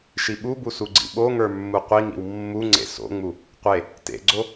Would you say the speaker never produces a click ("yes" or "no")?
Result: no